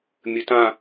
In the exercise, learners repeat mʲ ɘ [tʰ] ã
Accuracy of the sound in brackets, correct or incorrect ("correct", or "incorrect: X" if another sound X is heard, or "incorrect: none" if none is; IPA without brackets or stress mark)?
incorrect: t